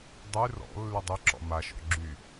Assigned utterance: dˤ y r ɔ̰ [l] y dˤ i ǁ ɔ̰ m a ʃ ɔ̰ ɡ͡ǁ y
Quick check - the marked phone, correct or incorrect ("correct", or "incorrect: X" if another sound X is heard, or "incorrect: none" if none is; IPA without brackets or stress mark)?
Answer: incorrect: lː